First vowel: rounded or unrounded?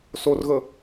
rounded